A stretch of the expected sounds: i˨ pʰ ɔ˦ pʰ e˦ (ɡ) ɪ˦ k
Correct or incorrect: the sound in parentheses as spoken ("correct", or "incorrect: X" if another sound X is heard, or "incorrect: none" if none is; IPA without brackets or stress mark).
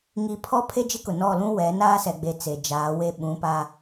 incorrect: d͡ʒ